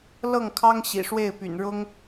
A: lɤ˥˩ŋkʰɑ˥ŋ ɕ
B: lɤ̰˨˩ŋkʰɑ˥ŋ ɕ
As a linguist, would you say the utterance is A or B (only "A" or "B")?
A